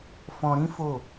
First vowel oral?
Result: no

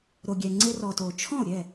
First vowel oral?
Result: yes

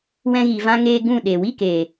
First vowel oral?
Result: no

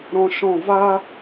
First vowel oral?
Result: no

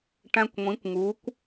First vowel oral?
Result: no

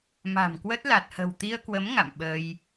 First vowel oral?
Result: yes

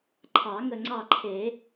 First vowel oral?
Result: yes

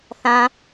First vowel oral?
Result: no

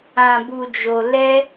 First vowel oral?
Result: no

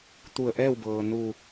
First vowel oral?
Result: yes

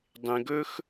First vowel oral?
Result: no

